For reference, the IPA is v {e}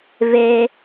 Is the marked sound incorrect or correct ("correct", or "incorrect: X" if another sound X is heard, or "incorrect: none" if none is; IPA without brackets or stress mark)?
correct